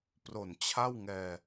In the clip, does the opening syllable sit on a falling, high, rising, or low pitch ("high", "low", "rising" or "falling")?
low